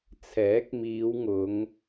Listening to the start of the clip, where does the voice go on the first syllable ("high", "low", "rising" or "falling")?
rising